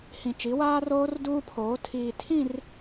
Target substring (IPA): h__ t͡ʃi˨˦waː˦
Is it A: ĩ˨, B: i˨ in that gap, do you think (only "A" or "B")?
A